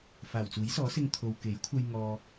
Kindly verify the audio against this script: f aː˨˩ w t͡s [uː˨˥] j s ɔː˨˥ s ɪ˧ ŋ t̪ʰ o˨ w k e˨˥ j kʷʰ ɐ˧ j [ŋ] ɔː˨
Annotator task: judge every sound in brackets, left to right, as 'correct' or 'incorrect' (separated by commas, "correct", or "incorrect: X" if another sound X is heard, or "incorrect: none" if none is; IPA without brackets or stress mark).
correct, correct